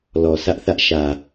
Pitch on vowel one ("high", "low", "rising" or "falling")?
low